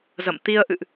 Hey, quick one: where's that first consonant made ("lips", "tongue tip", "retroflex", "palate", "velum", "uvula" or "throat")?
tongue tip